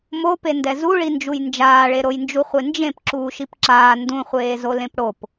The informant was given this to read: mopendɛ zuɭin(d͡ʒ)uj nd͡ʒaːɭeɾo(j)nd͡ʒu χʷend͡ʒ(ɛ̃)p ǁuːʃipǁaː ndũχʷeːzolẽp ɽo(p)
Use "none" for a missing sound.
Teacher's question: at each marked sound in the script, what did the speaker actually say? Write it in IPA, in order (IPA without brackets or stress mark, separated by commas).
d͡ʒ, j, ẽ, p